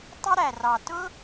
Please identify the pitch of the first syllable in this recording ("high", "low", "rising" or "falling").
high